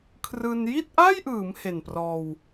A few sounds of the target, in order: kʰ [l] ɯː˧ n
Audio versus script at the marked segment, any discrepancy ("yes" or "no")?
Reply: yes